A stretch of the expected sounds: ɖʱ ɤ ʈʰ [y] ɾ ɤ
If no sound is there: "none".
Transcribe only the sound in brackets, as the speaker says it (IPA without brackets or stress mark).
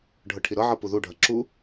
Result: i